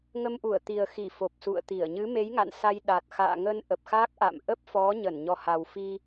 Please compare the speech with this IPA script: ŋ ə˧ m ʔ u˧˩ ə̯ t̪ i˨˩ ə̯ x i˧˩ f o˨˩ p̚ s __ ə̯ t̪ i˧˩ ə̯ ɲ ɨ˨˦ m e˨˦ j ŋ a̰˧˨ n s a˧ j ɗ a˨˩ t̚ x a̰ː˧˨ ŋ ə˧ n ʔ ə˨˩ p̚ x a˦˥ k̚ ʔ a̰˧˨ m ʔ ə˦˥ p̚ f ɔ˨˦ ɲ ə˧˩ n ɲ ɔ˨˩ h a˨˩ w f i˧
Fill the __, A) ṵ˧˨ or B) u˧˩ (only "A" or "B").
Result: A